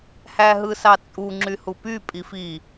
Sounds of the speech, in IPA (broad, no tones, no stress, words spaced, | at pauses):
hæɦɯsɑt͡sʼu ŋ͡ǁyhupy pʼifi